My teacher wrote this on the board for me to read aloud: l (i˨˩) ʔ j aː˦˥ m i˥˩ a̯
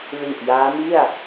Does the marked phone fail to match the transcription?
no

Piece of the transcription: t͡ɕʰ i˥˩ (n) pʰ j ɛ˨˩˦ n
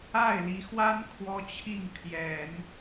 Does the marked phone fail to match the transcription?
yes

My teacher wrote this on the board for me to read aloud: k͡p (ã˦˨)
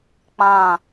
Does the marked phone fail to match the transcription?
no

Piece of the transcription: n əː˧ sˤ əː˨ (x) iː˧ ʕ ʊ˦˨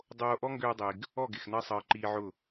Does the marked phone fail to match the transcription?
yes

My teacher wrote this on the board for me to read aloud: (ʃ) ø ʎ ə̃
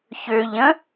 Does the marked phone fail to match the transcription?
yes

